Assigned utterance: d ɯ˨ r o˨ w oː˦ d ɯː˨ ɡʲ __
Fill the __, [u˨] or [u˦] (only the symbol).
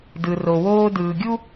u˦